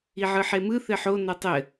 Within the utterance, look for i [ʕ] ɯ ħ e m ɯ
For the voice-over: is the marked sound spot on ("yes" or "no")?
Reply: yes